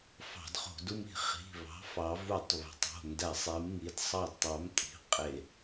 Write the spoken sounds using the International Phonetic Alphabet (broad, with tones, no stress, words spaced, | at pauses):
fɑ̤˧˩˧dχo̤˧˩˧du˦mi̤˧˩˧ χi̤˩˧˩βɑ̤˨˥ fɑ˩˧vu˧˩˧tˤ βe̤˩˧tˤo̤˩˧˩ ndæ˧˩˧sˤi˩˧mŋi˩˧d sˤɑ˦˨dtˤɑ˨˥m tʼi̤˩˧˩qʼe˧˩˧